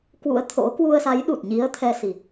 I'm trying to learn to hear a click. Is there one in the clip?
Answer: no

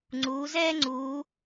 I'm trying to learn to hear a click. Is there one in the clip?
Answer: yes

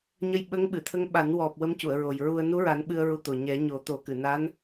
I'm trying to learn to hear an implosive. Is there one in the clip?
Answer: yes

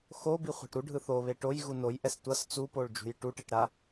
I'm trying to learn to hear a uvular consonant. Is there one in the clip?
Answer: yes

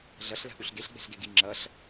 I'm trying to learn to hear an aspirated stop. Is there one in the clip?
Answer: no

